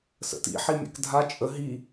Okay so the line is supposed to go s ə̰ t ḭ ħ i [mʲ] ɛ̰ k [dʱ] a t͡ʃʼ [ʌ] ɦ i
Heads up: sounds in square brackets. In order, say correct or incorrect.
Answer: correct, correct, incorrect

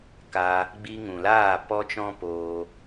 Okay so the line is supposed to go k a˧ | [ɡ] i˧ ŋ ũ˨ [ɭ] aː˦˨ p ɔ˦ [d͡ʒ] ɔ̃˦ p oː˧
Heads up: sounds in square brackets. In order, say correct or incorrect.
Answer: incorrect, incorrect, incorrect

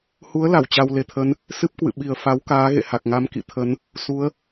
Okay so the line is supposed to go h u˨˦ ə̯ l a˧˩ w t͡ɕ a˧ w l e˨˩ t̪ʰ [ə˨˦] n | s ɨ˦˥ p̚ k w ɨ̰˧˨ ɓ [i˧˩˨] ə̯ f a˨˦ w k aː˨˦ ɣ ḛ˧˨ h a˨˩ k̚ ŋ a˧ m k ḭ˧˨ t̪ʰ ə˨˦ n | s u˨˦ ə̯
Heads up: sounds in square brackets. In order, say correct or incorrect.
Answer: correct, incorrect

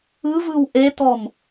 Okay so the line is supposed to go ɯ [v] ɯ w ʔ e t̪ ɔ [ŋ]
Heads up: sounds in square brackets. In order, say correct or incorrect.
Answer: correct, incorrect

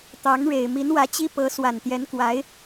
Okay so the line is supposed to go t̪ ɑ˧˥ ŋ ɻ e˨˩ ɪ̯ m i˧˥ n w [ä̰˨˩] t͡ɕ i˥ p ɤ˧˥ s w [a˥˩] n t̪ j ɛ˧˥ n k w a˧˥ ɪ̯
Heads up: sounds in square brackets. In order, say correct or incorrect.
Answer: incorrect, incorrect

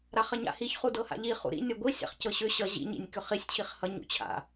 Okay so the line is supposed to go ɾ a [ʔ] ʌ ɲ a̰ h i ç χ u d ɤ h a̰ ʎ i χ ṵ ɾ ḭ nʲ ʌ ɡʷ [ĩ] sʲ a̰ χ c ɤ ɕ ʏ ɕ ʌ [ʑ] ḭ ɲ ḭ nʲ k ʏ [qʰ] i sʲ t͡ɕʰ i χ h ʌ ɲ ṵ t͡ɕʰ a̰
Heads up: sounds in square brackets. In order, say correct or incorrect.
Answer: incorrect, incorrect, correct, incorrect

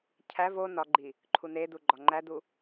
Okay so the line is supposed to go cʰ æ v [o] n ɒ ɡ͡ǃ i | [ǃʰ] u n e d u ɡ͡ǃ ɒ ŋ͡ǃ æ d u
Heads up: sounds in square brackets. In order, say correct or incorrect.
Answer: correct, correct

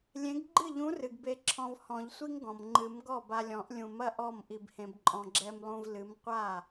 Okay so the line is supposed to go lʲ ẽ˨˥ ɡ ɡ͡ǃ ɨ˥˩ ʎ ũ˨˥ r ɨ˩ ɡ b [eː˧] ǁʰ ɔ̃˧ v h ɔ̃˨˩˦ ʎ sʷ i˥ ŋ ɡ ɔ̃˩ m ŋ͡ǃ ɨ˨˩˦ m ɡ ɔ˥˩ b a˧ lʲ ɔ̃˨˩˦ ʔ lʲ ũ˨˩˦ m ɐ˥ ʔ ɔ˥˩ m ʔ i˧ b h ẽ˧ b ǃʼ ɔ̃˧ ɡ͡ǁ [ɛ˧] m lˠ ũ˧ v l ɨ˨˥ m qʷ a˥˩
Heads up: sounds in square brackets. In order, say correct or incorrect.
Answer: incorrect, correct

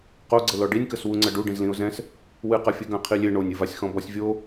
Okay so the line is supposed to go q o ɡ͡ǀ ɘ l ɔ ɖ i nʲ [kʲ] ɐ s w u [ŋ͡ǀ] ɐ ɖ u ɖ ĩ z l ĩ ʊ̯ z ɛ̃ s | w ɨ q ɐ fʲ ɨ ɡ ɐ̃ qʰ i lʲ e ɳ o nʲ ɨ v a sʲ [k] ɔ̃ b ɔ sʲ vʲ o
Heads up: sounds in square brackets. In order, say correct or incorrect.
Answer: incorrect, correct, incorrect

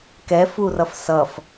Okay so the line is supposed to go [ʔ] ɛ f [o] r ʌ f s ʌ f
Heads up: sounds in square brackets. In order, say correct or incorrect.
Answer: incorrect, incorrect

